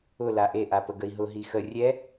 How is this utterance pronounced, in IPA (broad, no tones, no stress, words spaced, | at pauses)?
ʊ laʔeʔapə ɡəi̯ɦʊ ɦixə rʲɛ